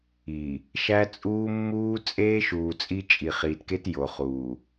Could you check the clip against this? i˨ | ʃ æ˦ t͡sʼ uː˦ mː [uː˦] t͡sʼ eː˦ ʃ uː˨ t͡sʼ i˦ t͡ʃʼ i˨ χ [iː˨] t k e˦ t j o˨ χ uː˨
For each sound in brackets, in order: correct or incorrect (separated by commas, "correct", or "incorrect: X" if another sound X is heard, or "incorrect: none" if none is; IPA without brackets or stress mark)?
correct, correct